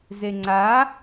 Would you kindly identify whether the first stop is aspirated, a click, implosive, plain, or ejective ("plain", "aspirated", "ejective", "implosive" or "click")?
click